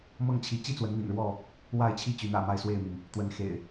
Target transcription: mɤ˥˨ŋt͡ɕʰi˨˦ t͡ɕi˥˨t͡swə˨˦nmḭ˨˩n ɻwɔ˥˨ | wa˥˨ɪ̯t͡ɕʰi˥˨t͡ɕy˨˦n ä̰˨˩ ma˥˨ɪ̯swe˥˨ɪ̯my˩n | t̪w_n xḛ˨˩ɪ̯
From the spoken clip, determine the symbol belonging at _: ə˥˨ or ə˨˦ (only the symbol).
ə˨˦